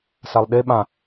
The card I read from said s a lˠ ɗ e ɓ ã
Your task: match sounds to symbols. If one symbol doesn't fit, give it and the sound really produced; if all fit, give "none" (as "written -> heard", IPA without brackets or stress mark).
none